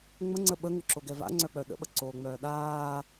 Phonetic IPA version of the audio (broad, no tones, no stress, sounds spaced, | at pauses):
ŋ͡m ə ŋ͡ǀ ə ɓ ə ŋ ʏ ǁ o ɡ ɛ v a̰ ŋ͡ǀ œ k͡p œ ɗ ə̰ ɓ ə ǀ oː ŋ͡m œː ɗ aː